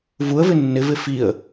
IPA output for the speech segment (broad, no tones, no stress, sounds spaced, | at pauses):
v u ə̯ v ɪ nː ɪ v ɪ f i ə̯